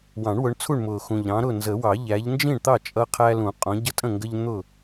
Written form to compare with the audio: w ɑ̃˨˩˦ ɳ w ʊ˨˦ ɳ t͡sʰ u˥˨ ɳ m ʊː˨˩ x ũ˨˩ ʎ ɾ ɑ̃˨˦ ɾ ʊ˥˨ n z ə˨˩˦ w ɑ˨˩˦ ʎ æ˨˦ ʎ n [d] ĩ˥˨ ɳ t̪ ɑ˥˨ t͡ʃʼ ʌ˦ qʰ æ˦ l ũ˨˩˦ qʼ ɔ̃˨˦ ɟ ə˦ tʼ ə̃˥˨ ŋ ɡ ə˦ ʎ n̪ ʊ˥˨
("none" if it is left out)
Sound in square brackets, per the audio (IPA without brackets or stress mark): d͡ʒ